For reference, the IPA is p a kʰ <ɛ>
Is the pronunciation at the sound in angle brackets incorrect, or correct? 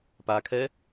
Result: correct